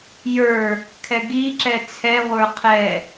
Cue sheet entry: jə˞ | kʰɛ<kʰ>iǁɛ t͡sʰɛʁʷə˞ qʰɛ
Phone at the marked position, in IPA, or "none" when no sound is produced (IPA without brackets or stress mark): ɡ